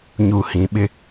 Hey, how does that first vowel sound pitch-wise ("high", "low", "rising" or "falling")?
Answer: low